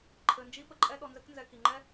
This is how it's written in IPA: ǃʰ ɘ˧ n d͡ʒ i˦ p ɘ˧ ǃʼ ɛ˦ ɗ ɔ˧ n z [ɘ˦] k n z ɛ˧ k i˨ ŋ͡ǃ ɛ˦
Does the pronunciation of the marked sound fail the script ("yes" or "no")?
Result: no